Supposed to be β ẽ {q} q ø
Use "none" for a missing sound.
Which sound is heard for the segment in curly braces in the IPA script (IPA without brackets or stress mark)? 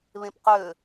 p